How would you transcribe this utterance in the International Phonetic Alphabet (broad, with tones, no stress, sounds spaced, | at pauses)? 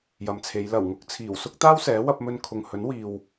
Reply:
j ɐ˨ m t͡sʰ e˨˧ j l ɐ˨˩ w ŋ ʊ˧ k̚ t͡sʰ iː˨˩ w s ʊ˥ k̚ t̪ aː˥ w s ɛː˨˥ w ɐ˧ p̚ m ɵ˧ n kʰ ʊ˨ ŋ h ɵ˨˥ n w iː˨ w